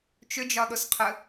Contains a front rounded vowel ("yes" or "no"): yes